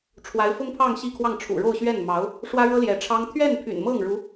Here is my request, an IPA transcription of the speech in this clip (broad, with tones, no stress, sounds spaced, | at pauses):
ʈ͡ʂʰ w a˧˥ ɪ̯ f ʊ˥ ŋ pʰ ɑ˥˧ ŋ ɕ i˥˧ kʰ w ɑ˥˩ ŋ ʈ͡ʂʰ ṵ˨˩ ɻ o˥˧ ʊ̯ ɕ ɥ ɛ˥˩ n m ɑ˧˥ ʊ̯ | ʂ w ä˥ ɻ ɤ˥ l j ɛ˧˥ ʈ͡ʂʰ ɑ˥ ŋ t̪ʰ ɥ ɛ˥˩ n pʰ y̰˨˩ n m ɤ˥˩ ŋ ɻ u˧˥